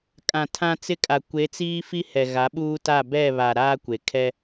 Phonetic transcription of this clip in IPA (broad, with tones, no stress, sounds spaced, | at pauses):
kʼ ã˨ tʰ ã˦ t͡s ɪ˦ kʼ a˨ kʷ e˨˦ t͡s iː˦ f i˦ h ɛ˨ ɣ a˨˦ ɓ uː˦ t a˦˨ b ɛ˦˨ β a˨ ɾ aː˦ kʷ e˨ kʰ ɛ˦